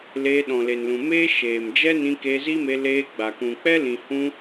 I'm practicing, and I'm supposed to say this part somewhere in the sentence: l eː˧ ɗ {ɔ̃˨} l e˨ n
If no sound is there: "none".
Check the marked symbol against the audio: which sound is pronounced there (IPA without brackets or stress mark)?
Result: ɔ̃˨